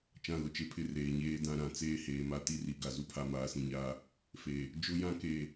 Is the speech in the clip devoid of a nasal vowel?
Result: no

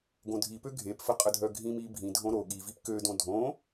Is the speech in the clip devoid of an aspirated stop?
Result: yes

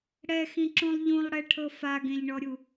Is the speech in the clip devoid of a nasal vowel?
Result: no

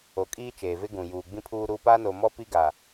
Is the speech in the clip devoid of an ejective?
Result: no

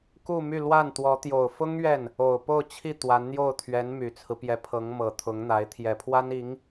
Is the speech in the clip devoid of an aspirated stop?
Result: no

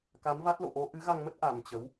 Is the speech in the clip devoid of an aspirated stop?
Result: yes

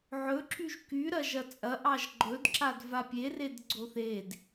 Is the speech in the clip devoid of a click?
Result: no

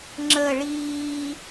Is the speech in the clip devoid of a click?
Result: no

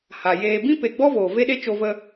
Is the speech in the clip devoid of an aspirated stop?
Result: yes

